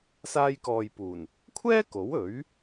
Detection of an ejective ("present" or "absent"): absent